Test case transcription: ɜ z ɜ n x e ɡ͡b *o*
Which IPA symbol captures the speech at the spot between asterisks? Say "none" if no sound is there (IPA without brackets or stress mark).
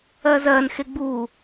u